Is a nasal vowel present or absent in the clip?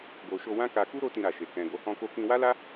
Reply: present